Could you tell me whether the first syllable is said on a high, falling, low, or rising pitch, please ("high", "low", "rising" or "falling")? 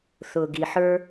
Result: low